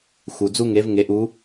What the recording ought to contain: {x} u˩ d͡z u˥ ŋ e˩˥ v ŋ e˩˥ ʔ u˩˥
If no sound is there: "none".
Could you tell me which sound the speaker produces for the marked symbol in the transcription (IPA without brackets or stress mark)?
x